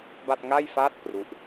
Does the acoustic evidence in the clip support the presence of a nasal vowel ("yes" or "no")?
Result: no